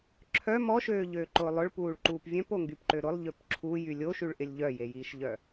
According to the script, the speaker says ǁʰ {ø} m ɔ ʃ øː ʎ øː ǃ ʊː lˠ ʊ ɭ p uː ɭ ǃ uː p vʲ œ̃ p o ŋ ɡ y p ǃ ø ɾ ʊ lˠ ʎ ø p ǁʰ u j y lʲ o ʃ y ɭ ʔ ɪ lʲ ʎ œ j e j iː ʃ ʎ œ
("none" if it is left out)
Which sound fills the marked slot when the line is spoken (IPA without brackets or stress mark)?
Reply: œ